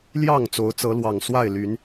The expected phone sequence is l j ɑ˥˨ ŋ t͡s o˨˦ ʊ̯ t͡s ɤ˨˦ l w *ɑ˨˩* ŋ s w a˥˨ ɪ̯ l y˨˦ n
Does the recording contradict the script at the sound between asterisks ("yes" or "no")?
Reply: no